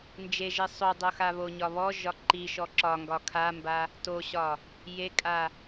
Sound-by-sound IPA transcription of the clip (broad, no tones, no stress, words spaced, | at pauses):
nd͡ʒeʒe sˤodˤoxa βoɲɒ βɔʒɒ ǃiʃɔ ǁɒŋɡɒ kʰamba | toɕɒ | jekʼa